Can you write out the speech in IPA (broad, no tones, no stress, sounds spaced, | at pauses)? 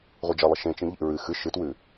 ʁʷ i d͡ʒ ɐ lˠ ɐ ʃ ẽ t͡ʃ ĩ ʎ ḭ ɹ ɨ x ɨ ʃ ɨ t w ʉ